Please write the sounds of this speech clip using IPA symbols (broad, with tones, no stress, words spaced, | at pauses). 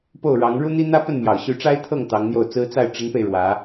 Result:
po˥˩ʊ̯ɻɑ˧˥ŋ ɻu˥n̪i˥ n̪ä˥pə˥˩n mjɑ˨˩ʊ̯ɕy˧˥ʈ͡ʂa˥ɪ̯ t̪ʰɤ˥˩ŋ t̪ɑ˧˥ŋn̪jo˥˩ʊ̯t͡sɹ̩˥ t͡sa˥˩ɪ̯ ʈ͡ʂə˧˥npe˧ɪ̯ ɻwä˧˥